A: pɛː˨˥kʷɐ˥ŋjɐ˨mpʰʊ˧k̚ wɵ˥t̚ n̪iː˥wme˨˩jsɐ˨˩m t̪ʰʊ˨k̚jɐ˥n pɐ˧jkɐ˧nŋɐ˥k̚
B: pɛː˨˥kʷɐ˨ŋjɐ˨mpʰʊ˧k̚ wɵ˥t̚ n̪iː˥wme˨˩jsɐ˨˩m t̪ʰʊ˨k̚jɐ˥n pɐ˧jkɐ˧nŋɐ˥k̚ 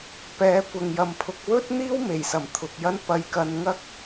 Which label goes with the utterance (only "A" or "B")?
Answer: B